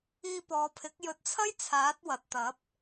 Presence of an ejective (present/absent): absent